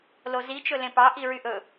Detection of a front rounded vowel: present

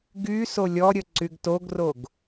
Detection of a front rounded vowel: present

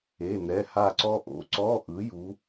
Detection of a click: present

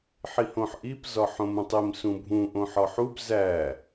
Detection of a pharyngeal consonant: present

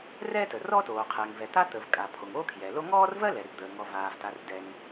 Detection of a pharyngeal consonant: absent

